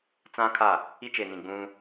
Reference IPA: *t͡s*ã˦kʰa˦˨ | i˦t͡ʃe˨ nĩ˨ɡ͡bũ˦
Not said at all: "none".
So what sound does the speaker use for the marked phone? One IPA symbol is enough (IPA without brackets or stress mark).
t͡s